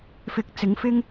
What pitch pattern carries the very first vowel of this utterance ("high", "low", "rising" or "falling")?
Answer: rising